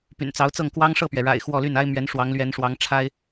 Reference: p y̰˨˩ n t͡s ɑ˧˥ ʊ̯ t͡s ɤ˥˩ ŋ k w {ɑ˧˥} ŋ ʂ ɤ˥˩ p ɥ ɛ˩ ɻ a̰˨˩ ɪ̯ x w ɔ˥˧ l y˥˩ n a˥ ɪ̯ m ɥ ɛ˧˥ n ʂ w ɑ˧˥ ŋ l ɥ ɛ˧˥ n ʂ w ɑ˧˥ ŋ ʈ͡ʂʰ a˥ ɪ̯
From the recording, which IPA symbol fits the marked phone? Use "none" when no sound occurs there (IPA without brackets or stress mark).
ɑ˥